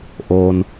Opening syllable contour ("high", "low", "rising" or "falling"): low